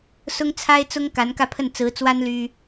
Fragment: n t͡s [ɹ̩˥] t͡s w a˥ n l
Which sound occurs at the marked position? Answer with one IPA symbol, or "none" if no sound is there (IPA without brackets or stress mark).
ɹ̩˧˥